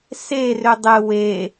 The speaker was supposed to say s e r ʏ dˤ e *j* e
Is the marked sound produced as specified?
no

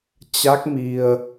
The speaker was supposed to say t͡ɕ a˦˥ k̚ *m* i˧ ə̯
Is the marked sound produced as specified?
yes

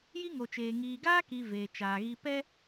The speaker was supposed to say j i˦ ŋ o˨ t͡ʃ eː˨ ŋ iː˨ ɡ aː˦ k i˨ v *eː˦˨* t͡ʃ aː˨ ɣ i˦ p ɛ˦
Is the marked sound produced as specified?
no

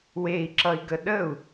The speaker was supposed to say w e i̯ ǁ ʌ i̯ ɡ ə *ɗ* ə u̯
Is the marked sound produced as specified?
yes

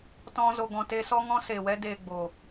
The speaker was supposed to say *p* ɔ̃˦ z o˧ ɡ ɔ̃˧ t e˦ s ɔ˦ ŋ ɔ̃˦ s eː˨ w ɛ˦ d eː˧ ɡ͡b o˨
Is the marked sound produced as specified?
no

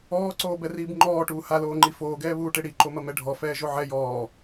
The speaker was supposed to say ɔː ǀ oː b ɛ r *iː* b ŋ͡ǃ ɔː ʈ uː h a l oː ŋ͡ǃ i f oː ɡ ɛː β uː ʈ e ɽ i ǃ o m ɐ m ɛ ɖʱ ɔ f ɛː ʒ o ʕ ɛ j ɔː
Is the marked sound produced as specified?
yes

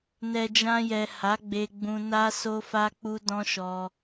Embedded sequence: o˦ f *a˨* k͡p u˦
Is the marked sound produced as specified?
no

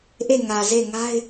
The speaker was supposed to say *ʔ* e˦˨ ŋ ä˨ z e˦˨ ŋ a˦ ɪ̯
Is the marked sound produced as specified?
yes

